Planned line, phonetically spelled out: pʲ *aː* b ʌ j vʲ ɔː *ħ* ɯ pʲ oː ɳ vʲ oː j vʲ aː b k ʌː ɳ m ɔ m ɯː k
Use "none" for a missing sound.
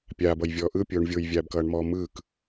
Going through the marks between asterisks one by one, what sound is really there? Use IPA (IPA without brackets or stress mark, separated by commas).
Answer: aː, ʔ